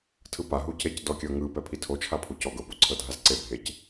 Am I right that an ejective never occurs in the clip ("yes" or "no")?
yes